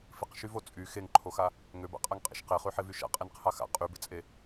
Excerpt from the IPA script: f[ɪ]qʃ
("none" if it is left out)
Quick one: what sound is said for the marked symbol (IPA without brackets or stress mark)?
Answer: ɪ